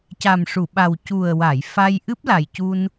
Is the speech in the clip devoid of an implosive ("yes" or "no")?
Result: no